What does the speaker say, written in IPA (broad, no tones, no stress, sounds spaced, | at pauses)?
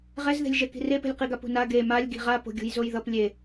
ʁ ɛ z ð e̤ lʲ ʒ ɛ k i̤ r e p e̤ lʲ q i ɡ a p ṳ n a ɡ e m a lʲ ɡ i̤ ʁ a p o̤ ɡʲ ṳ j z o j ð ʌ p lʲ e